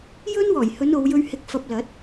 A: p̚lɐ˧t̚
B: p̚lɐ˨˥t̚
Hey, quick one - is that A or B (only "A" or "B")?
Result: B